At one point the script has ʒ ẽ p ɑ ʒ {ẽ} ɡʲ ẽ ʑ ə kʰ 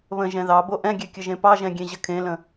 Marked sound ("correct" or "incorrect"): incorrect